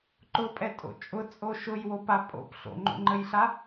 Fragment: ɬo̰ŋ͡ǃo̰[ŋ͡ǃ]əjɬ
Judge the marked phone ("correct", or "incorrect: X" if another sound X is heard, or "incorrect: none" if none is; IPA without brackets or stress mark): correct